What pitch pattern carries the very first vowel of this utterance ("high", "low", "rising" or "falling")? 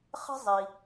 high